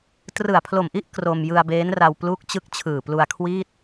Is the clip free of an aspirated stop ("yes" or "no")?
no